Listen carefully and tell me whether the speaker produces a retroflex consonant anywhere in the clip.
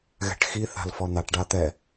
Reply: yes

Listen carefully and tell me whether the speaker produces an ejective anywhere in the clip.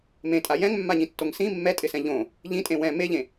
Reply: yes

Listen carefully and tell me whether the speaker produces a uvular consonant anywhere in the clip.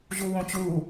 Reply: no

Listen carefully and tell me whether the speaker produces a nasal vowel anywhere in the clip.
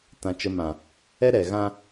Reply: yes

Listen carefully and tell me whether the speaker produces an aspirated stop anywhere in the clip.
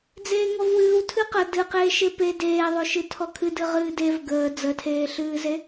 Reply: yes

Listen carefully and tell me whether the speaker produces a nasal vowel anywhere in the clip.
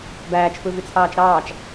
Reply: no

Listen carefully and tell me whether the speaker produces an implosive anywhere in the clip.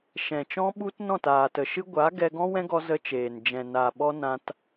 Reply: yes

